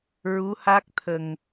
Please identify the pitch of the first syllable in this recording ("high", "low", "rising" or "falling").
rising